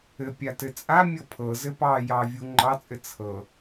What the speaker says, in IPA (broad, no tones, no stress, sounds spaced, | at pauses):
ɘ pʲ a t ɘ t͡sʼ a mʲ ɤ pʰ ɤ z ɘ p ɑ j ɑ vʲ u ŋ͡ǃ ɑ t͡sʼ ɘ t͡sʰ ɤ